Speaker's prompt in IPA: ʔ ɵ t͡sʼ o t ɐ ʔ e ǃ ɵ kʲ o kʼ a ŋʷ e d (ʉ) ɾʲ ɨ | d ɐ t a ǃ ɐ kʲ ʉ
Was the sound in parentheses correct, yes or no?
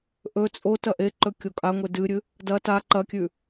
no